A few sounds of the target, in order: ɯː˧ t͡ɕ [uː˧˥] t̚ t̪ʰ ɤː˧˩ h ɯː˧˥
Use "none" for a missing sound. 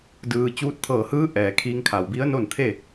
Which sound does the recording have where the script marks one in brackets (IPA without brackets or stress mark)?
uː˧